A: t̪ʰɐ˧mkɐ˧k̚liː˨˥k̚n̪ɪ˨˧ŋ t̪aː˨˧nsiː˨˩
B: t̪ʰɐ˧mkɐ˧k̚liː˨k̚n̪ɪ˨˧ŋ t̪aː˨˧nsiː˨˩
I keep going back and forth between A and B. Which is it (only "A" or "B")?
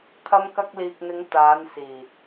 B